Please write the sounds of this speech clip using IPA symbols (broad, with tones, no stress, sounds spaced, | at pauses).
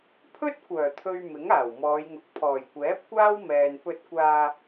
pʰ ɵ˥ t̚ kʷ œː˨˩ t̪ʰ ɵ˨ ɥ m ɪ˨˥ ŋ aː˨˩ w m ɔː˨˧ j ŋ ʊ˨ k̚ pʰ ɔː˨˩ j kʷ ɛː˨˥ p̚ kʷ aː˥ w m ɛː˨ n p ɵ˧ t̚ kʷ aː˧